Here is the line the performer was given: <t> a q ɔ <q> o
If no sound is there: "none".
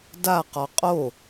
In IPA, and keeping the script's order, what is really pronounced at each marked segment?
d, qʼ

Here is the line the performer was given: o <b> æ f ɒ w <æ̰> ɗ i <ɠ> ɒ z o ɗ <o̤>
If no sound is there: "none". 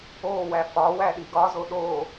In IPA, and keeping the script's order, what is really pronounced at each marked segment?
w, æ, ɡ, o

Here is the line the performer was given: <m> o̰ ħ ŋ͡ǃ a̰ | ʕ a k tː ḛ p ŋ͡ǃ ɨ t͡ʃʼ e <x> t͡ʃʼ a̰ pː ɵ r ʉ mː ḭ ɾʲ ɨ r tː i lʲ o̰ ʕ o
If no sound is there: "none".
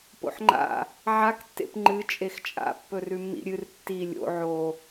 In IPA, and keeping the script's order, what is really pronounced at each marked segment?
p, x

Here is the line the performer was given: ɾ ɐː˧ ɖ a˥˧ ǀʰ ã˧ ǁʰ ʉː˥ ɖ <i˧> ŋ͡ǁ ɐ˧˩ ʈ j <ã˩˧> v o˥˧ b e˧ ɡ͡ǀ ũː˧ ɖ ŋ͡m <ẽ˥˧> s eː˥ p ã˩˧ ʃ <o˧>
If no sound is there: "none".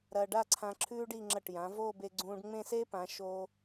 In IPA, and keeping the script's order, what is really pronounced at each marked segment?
i˥˧, ã˩˧, ẽ˥˧, o˧

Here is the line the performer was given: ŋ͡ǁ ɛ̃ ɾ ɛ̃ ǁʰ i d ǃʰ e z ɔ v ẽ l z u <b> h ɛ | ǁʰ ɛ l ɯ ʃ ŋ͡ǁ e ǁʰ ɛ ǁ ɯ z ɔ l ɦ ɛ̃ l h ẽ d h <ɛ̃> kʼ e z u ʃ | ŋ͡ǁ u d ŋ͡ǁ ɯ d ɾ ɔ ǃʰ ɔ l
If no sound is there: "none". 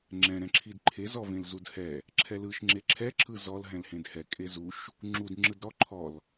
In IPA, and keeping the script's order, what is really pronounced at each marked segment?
d, ɛ

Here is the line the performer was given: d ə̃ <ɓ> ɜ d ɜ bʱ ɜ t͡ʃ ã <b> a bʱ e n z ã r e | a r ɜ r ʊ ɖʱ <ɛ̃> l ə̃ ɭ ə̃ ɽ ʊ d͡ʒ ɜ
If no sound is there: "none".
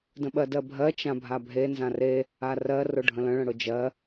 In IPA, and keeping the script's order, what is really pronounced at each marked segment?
ɓ, bʱ, ə̃

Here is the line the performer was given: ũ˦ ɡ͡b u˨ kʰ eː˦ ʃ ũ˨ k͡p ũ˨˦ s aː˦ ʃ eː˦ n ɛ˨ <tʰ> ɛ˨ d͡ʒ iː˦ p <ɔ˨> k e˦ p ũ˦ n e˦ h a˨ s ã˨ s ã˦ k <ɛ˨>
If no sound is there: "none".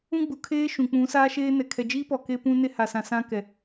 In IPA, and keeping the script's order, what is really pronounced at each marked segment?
kʰ, ɔ˨, ɛ˨

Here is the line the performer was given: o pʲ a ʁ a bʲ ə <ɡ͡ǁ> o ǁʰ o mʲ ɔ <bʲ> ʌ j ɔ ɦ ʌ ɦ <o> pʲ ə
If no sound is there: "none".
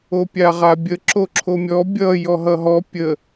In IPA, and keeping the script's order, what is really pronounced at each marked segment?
ǁ, bʲ, ɔ

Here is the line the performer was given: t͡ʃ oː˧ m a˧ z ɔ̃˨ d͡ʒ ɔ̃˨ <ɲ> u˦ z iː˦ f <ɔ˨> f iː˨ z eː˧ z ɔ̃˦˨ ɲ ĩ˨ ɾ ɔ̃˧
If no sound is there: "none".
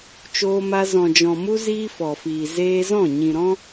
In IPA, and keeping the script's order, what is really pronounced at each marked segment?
m, ɔ˨

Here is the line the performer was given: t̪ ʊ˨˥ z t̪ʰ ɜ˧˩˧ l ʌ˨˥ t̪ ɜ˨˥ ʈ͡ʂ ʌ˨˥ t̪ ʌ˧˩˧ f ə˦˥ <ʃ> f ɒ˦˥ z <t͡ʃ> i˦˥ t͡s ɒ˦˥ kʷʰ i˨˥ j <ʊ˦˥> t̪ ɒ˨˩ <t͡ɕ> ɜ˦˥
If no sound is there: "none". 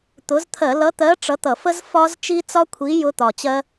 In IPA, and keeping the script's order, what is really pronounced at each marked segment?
z, t͡ʃ, ʊ˦˥, t͡ɕ

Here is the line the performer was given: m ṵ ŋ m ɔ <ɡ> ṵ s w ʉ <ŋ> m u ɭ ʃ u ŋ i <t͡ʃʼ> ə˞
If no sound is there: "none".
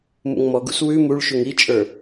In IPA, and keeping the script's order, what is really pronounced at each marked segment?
ɡ, none, t͡ʃʼ

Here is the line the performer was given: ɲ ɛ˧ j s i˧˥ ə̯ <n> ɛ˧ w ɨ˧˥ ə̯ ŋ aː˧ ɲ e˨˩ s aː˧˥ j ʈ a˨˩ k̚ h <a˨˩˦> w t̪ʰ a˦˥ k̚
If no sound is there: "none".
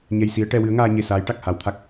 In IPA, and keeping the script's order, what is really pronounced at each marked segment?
ʈ, a˧˥

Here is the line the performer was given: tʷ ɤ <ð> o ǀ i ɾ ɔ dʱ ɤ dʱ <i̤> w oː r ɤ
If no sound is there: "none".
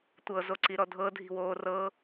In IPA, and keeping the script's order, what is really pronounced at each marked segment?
z, i̤

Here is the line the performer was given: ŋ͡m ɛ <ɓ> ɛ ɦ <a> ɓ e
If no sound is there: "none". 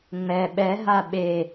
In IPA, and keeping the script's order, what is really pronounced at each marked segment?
ɓ, a

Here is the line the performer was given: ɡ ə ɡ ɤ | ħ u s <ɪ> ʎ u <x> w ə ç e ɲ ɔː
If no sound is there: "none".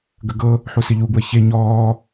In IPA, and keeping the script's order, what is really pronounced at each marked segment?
ɪ, ɡ

